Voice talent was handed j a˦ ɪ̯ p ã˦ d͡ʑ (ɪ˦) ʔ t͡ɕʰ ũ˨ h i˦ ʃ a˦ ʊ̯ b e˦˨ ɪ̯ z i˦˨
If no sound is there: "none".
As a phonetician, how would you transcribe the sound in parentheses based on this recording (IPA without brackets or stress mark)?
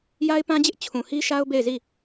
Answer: ɪ˦